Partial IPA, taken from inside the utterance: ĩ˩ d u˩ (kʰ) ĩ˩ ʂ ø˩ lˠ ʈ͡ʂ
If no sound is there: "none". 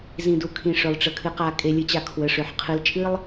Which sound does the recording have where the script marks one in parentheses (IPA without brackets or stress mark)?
kʰ